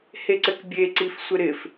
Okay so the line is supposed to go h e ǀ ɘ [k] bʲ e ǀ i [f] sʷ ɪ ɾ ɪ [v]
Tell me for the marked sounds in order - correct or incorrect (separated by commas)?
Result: correct, correct, incorrect